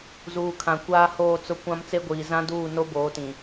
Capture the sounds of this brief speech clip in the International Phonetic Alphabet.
z uː˨ kʰ ã˨ kʷ aː˦ h oː˦˨ t͡s ʊ˦ kʷ ã˦ m t͡s e˦ ɡʷ iː˨ z ã˦ d uː˦˨ n o˦ b oː˨˦ t ĩ˨

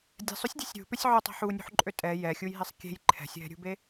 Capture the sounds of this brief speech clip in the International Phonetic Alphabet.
dʲ ɛ̤ sˤ ʏ sʲ dʲ ɛ̤ sʲ ɾʲ ṳ p ʏ sʲ ʕ ʏ tˤ e̤ ħ u nʲ ṳ ħ ǃʼ ø tʼ ɛ j ɛ xʲ u j ɦ e sˤ kʲ e̤ j ǃʰ ɛ̤ sʲ ɦ ɛ̤ ɾʲ ṳ b e

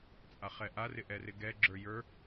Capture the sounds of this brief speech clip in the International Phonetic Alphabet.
t͡sʼ a χ ɛ ʔ a r ɪ ʔ ɛ r ɪ ɡ ɛ ɡ͡ǁ ə˞ j ə˞

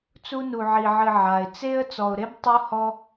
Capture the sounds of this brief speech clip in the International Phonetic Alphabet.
t͡s u˦ n u˨ ʕ i˨ ʕ ɨ˨ ʕ a˩ ɪ̯ t͡s e˥ ə̯ t͡s ɔ˨ ʊ̯ ɾ e˥ b tˤ u˥ h ɔ˥

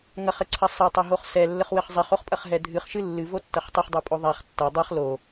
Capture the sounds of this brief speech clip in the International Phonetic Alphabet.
ŋ ɐ χ ɘ ǀʰ ɐ sˤ ɛ tˤ ɐ ɦ o χ s ɛ lː ɘ χ w ɘ χ zˤ i χ o χ pʼ ɐ χ ɦ ɛ dʱ ɨ χ ʃ ɨ lː ɨ v o tː ɐ χ tˤ i χ dˤ i pʼ o ðˤ a χ tː ɐ dˤ ɨ χ l o

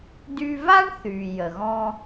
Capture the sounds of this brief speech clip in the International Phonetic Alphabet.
d y˧ v a˥ ɳ θ y˩ j ə˩ ɣ ɔ̃˧

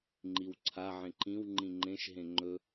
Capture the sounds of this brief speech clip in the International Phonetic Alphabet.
ŋ͡ǃ i w ǀʰ a ʕ ẽ ǃ ĩ w ŋ͡ǃ ĩ ŋ͡ǃ ẽ ʃ ɦ ẽ ŋ͡ǃ ɵ

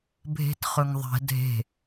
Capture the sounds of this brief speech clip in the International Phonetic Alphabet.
bʱ e̤ t χ ɵ ŋ ðˤ ɛ̤ dʱ e̤

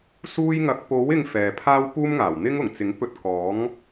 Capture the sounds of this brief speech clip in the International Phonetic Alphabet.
s uː˥ j ŋ ɐ˧ k̚ p o˨˥ w ɪ˧ ŋ f ɛː˨ pʰ aː˥ w p uː˥ m ŋ aː˨˩ w n̪ ɪ˥ ŋ ʊ˨˩ ŋ t͡s ɪ˨˥ ŋ p ɵ˧ t̚ k ɔː˨˥ ŋ

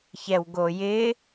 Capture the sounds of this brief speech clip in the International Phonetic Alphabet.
ç ɛ w ɡ o j ɪ

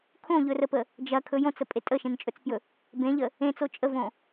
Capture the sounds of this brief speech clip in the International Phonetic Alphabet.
kʰ õ ʎ ɵ r ə p ə | d͡ʒ ɐ kʰ ɵ j õ t͡s ə pʼ e tʼ ə ʃ ẽ n t͡ʃʼ ɵ t͡s p j ɵ | b ẽ ʎ ə | ẽ t͡s o t͡ʃʼ ə v õ

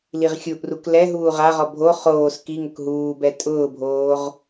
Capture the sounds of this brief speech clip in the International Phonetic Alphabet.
l i ʁ xʲ u ʔ r u k l ɛ ɦ uː ʁ a ʁ ɔ bʱ o χ oː s k i ŋ ʊ k ɦ uː b ɛ tʼ ʊː bʱ oː ʁ

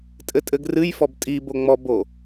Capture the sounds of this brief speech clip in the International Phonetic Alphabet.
tʼ ɘ tʼ ɘ ɡ r ɨ j f ɔ b tʼ i b o ŋ͡m ɔ b o

